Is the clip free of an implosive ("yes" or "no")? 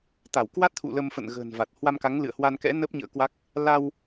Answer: yes